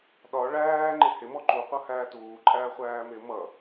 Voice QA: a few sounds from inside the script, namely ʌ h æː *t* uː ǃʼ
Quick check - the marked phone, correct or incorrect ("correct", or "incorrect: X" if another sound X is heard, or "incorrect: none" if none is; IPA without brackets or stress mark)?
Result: correct